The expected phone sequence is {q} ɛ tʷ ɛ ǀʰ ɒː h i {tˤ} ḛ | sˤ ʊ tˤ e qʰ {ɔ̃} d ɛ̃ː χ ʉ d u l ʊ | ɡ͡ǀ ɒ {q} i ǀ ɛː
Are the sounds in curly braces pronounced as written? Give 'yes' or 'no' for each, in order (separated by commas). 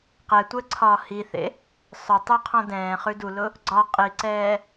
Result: yes, no, yes, no